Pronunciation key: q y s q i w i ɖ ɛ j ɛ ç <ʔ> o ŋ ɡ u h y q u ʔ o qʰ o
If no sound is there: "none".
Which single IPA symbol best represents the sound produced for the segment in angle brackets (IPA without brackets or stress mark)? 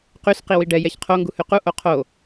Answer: qʰ